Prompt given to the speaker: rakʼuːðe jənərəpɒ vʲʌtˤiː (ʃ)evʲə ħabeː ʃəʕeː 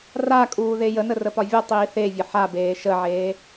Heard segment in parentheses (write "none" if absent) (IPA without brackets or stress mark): θ